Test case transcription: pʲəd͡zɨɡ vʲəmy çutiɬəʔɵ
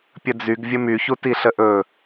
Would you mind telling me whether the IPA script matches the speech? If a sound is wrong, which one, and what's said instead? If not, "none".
ɨ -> y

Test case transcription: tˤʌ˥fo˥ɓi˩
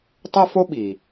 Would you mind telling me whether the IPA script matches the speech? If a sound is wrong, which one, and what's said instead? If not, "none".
none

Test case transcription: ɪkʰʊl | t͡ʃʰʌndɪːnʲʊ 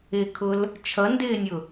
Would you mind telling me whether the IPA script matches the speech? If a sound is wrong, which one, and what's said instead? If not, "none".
none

